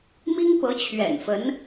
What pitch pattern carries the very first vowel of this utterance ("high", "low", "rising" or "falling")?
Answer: high